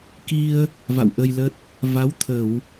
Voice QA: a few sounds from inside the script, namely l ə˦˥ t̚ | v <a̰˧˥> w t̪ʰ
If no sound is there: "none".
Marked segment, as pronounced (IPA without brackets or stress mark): a˨˦